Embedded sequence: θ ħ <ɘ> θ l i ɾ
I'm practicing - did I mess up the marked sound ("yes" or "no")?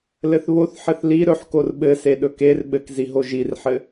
no